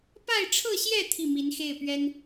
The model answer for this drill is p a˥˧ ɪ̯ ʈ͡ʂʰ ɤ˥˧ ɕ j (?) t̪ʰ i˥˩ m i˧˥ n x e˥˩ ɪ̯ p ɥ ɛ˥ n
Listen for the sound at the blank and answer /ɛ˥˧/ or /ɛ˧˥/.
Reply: ɛ˥˧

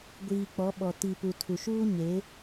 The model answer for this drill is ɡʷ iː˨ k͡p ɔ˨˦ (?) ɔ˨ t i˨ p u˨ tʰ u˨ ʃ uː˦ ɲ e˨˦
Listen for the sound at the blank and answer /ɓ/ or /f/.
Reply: ɓ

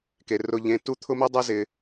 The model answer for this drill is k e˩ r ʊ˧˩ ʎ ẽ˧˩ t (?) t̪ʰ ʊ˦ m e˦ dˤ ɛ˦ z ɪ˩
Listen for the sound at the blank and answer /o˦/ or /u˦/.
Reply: u˦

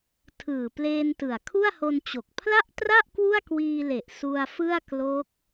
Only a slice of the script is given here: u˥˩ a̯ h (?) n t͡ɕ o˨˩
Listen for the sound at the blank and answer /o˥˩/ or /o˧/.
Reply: o˧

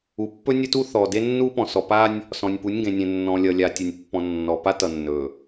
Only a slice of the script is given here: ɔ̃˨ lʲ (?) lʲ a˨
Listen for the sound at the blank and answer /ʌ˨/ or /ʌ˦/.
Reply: ʌ˨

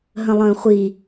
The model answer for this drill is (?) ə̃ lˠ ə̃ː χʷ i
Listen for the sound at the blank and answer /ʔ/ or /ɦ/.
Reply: ɦ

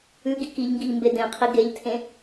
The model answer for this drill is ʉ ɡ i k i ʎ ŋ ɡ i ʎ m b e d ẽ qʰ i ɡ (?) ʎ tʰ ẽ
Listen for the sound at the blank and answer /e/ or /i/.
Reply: e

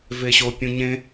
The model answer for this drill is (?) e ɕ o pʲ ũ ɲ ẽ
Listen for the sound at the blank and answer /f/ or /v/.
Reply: v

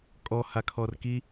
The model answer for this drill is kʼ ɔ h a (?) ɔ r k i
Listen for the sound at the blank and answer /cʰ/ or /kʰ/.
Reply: kʰ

